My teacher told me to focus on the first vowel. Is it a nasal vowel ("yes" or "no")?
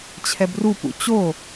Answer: no